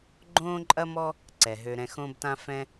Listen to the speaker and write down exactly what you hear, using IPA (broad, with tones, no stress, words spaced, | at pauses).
ɡ͡ǃõː˦ǃʼɐ˦mɔ˦ | ǀɛ˨ɦø˧ ɾɛ̃˧xõː˦btã˦ fɛ̃˦